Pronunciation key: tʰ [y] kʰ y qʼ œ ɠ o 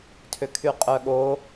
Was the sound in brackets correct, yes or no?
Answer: no